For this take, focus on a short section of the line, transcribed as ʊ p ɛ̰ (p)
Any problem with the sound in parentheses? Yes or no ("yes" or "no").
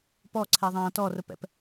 no